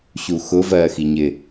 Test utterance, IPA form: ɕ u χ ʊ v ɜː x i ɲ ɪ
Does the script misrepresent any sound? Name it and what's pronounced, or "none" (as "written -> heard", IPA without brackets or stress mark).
χ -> x